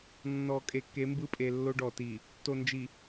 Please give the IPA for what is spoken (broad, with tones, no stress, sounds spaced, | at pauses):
nː ɔ˨ kʼ e˨ k e˨˦ m b ɯ˦ pʼ e˨ lː o˦ ɖ ɔ˨ t i˨ | t o˨ n d͡ʒ i˨